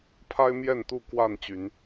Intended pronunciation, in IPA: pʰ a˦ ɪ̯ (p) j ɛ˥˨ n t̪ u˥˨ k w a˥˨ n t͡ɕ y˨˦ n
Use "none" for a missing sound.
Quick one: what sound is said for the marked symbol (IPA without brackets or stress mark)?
m